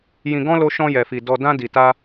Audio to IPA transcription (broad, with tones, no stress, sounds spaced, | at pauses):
j ĩ˧ ɡ ɔ̃˦ l o˦ ʃ ɔ̃˦ j ɛ˧ f i˧ d ɔ˧ d ã˦ d i˧ t a˦